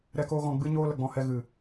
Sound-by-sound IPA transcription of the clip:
ɾ ɛ˦ k oː˦ ɣ ɔ̃˧ ɡ͡b ɨ˦ ɲ oː˦ l ə˨ ɡ͡b ɔ̃˧ h ɛ˧ ɣ ɨ˨

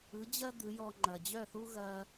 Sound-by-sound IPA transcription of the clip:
ɯ˩˥ d͡ʑ ɐ˥ d̪ ɯ˩˥ j ɔ˧ ŋ͡ǃ ɐ˩ d͡ʑ œ˥˩ θ u˥ ɣ ɐ˧

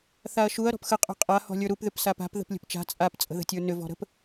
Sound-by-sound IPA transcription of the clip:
θ a ɐ̯ ʃ u ɐ̯ ɾ ɔ̤ p x ə qʼ ṳ qʼ a h ɔ̤ lʲ ə˞ ɾ u p ð ʏ p s a p a̤ p ð ə̤ p lʲ ə̤ p t͡ʃ a̤ t͡sʼ a p t͡sʼ ə̤ ð ə̤ tʲ ə˞ n ʏ v ɔ̤ ɾ ə̤ p

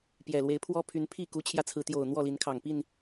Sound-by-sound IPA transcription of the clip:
p j ɛ˨˩ l w e˨˦ ɪ̯ pʰ w ɔ˦ pʰ y˨˦ n pʰ i˥˨ k u˨˦ t͡ɕʰ j ä˧ t͡sʰ ɹ̩˨˦ t̪ j o˨˩ ʊ̯ n̪ w ɔ˥˨ l i˨˦ n kʰ ɑ˨˩ ŋ p i˥˨ n

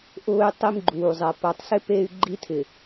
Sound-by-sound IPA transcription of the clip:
ʔ ʊː˦ y̯ tˤ i˦ m ɡ͡ǃ uː˨ zˤ ɛ˨ p a˨ tˤ s ɪ˦ p e˦ y̯ ɡ͡ǃ i˦ tʰ ɪ˨

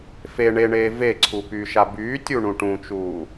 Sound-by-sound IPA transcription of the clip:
f e ɳ e ɳ eː v e ǀʰ u p yː ʃ a b yː tʲ u ɳ ũ ʈ ũ t͡ʃ uː

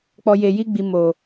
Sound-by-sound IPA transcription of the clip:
k͡p ɔ˨ j e˨ j i˧ ɡ͡b i˨ m o˨

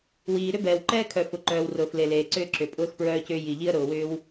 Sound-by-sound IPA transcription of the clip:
w iː˩ ɾ ʏ˥ b ɛː˩ w ǃ ɛː˥ kʰ œ˩ f ʊ˩ ǃ œː˩ w r ʊː˩ f l e˩ l eː˩ ǀ ʏː˥ ǁ ʏ˩ pʼ ʊː˥ x p ɹ œː˥ c ʏː˥ j i˩ ʎ i˥ ə̯ ɾ ʊː˩ w ʏː˥ w

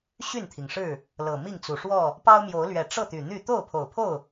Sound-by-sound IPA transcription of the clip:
ɕ y˥˨ n t̪ʰ i˩ ŋ ʂ ɻ̩˥˨ | l ɤ˨˩ m i˥˨ ŋ t͡s u˨˩ ʂ w ɔ˥˨ | p ɑ˦ ʊ̯ m j o˨˦ ʊ̯ l ɥ ɛ˨˩ ʈ͡ʂ ɤ˥˨ t̪ y˨˩ n̪ y˥˨ t̪ o˥˨ ʊ̯ pʰ o˨˩ ʊ̯ pʰ o˥˨ ʊ̯

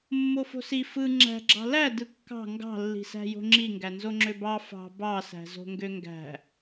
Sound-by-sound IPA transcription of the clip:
mː o f o̤ s i f ɯ ŋ͡ǁ æ̤ ɡ͡ǁ ɑ̤ l æ d ɯ kː ɑ̤ ŋ ɡ ɑ̤ lː i̤ s æ̤ j o̤ ŋ͡ǁ i ŋ ɡ æ n z o ŋ͡ǁ ø b ɑ f ɑ̤ b ɑ s æ̤ z o̤ ŋ ɡ ø ŋ ɡ æ̤

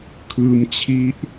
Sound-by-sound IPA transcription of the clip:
kʰ ɯː˧ m t͡ɕʰ i˦˥ ʔ

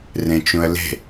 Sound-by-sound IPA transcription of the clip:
r ẽ t͡ʃ ũ ə̯ l e̤

